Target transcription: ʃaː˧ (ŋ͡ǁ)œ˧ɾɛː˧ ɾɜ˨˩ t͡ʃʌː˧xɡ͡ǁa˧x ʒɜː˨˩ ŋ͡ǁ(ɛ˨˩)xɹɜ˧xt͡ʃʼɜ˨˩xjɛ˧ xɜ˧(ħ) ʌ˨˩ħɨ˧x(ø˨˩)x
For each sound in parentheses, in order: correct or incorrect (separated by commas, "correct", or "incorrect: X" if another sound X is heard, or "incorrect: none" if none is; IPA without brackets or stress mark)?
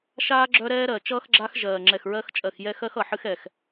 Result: incorrect: ɡ͡ǁ, correct, incorrect: x, incorrect: ɛ˨˩